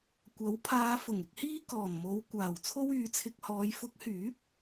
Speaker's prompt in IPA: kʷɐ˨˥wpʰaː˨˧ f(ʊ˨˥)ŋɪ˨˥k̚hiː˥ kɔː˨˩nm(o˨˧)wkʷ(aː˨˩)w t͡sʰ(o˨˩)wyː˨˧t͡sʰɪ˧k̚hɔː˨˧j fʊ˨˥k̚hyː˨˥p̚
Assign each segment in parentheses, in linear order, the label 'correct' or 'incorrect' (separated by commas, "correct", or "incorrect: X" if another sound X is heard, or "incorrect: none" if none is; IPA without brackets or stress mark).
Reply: incorrect: ʊ˨˩, correct, correct, incorrect: o˥